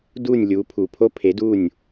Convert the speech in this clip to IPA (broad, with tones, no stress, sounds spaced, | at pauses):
d uː˥˩ nʲ lʲ uː˩˥ pʰ u˩ pʰ o˥ pʰ e˩˥ d u˥˩ nʲ